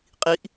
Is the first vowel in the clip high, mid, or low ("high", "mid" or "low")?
high